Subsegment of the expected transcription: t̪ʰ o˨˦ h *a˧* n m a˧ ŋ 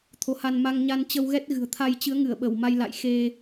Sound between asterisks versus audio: correct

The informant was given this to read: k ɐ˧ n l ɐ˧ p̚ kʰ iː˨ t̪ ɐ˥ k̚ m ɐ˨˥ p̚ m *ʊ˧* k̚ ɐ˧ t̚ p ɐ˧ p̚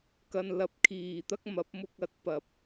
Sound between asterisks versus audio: correct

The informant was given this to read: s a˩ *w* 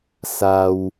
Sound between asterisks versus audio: correct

